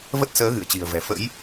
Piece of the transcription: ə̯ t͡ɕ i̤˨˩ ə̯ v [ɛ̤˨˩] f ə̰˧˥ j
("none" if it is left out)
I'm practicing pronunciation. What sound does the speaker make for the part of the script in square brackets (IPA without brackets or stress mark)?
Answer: ɛ̤˨˩